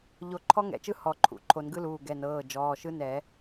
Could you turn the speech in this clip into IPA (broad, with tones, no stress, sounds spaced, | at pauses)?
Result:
ʎ o˨˩˦ ǃʰ ɔ˦˥ ŋ ɛ̰˨˩˦ t͡ʃ ɯ˦˥ h ɔ˨˩˦ ǃʰ ṵ˩˧˩ ǃʰ o˨˩˦ n ɡ ɯ˦˥ l uː˩˧˩ ɡ ɛ˩˧˩ n ɤː˩˧˩ d͡ʒ ɔː˩˧˩ ʃ ɯ˦˥ n ɛ˨˩˦